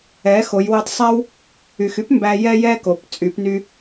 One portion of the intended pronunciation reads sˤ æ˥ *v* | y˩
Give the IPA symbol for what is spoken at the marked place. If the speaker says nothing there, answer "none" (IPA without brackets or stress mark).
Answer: w